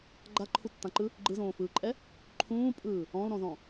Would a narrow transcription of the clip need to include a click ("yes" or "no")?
yes